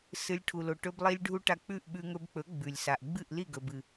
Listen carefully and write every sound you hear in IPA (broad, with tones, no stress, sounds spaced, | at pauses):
s ɨ˧ lʲ ʈʰ u˨ l o˨ ʈ ɵ˧ b lˠ i˧ lʲ ɖʱ u˧ ʈ a˧ k͡p ʉ˦˨ ʔ ɓ ʉ˧ ŋ ɵ˧ b k͡p ɵ˨˦ ɡ͡b ʉ˨ lʲ s a˨ ʔ ɡ͡b ɨ˦˨ ʔ l i˦˨ ɡ ɵ˨ b ɨ˨